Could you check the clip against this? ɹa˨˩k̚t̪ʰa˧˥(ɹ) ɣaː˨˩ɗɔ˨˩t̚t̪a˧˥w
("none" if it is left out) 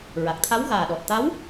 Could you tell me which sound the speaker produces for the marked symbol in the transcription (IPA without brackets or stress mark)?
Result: w